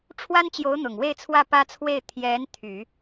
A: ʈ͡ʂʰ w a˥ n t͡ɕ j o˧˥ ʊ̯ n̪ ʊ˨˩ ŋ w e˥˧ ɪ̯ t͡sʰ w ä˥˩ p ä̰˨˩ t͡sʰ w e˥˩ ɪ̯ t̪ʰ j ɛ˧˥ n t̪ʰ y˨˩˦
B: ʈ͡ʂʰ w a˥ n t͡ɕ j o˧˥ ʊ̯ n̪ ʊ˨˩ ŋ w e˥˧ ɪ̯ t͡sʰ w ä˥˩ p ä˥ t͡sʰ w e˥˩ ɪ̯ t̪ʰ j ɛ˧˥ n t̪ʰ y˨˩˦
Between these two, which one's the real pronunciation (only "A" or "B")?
B